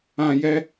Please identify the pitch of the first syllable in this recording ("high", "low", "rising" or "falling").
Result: low